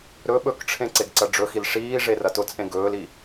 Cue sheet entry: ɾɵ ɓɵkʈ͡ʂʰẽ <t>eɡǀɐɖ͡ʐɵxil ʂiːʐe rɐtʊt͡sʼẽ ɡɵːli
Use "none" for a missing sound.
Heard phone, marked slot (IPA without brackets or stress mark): ǀ